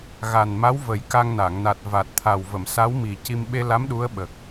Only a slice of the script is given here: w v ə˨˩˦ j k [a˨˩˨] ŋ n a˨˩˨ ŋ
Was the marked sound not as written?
yes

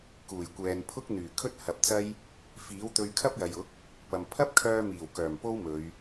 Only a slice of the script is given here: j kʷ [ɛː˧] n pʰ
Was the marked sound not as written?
yes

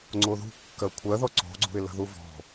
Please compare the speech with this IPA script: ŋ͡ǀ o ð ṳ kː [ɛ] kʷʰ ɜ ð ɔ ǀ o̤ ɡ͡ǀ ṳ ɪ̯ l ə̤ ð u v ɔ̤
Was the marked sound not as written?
yes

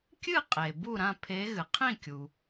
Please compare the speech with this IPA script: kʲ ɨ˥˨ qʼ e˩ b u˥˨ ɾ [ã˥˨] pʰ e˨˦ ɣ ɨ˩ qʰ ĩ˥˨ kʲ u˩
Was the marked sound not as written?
no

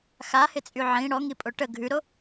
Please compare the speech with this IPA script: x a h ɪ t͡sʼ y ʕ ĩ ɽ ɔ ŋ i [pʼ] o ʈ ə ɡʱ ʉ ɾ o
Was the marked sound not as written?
no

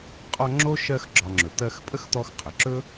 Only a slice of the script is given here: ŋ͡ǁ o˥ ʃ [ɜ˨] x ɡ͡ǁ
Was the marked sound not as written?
yes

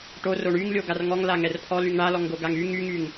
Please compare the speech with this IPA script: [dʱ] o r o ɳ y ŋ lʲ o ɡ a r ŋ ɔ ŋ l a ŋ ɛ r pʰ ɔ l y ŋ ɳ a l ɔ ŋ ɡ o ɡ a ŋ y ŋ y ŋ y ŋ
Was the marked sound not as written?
yes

